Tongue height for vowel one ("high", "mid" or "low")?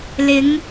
high